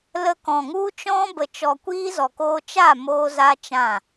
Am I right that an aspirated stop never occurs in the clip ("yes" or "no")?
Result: yes